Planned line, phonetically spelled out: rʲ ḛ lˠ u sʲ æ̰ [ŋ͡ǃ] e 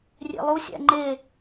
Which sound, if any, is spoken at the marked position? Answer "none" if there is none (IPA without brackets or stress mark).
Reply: ŋ͡ǃ